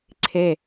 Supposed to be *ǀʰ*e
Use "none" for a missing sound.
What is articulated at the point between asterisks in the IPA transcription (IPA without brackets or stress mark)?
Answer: ǀʰ